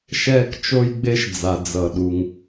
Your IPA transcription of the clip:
ʃ ɛː˥ k t͡ʃ o˥ j ɡ͡b e˥ ʃ d͡z a˩ d͡z ʌ˩ ɗ u˩ ŋ

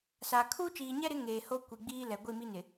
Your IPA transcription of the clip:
s a˨ kʰ uː˦ t͡ʃ iː˨ ɲ ɛ˦ ɾ ɪ˨˦ ŋ eː˨ h o˦ kʷ i˨ ɡ͡b iː˦ l ɛ˨ ɡʷ i˦˨ m i˦ n ɪ˨

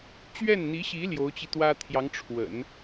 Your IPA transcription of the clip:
t͡ɕ ɥ ɛ˥˩ n n̪ i˧˥ ɕ i˧˥ l j o˧˥ ʊ̯ t͡ɕ i˧ t̪ w ä˥ t̪ʰ j ɑ˧˥ ŋ ʈ͡ʂʰ w ə̰˨˩˦ n

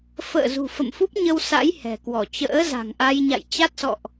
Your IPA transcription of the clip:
f ə̰ː˧˨ z ṳ˨˩ f ə̰˧˨ m f u˦˥ p̚ ɲ ə˧ w s a̰˧˥ j h ɛ̤˨˩ k w ɔ˧˩ t͡ɕ ə̰ː˧˥ z a̤˨˩ ŋ ʔ a˧ j ɲ a̰˧˨ j t͡ɕ a˦˥ t̚ s ɔ̰˧˨ ʔ

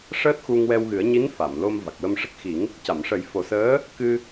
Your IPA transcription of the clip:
ʂ əː˦˥ t̚ x u˧ ŋ w ɛ˧ w ɣ ɨ˨˩˦ ə̯ ɲ i˧˥ n f a˨˩˨ m l o˧ m v a˨˩ k̚ w ə˧ m ʂ ə˦˥ k̚ x i˨˩˦ ŋ | c a˨˩˨ m ʂ ə˨˩˦ j f o˨˩ s əː˧˥ | k ɨ˧

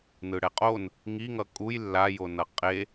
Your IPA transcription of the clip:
n ɯ ɽ ɛ qʼ o n | ŋ i ŋ ʌ kʼ u j lː a j o n ʌ qʼ e

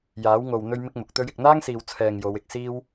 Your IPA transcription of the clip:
j aː˨˥ w ŋ o˨ w n̪ ɵ˥ ɥ m ɪ˥ k̚ m ʊ˨˥ k̚ t̪ ɵ˥ ɥ ɪ˨ k̚ n̪ aː˥ ŋ s iː˨ w t͡sʰ ɛː˧ ŋ j o˨˧ w ɪ˧ k̚ s iː˥ w

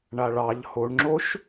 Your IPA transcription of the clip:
ɳ a ɭ ɑ ʎ h o ɳ ŋ͡ǁ o ʃ

